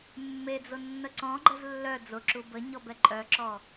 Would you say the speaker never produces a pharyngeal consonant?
yes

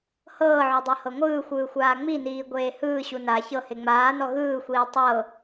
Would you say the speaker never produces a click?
yes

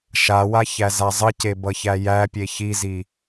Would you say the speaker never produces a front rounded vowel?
yes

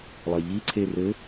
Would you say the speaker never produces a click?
no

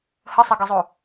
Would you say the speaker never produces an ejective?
yes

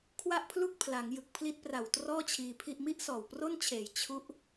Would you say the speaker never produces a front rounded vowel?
yes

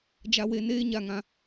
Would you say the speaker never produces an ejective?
yes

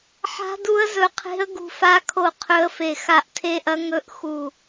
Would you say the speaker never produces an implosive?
yes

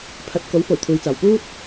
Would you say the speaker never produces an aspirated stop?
no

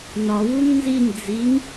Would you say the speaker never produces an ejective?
yes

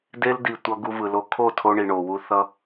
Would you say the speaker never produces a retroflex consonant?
no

